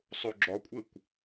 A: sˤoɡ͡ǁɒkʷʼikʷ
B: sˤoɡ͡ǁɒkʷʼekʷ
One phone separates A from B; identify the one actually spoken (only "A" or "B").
B